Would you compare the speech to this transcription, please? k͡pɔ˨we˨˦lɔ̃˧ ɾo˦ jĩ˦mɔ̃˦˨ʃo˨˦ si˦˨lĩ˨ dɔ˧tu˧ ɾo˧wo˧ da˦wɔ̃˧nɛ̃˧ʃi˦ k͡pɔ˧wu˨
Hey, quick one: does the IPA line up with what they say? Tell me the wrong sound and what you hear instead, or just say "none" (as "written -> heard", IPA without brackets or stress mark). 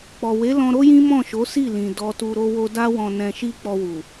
none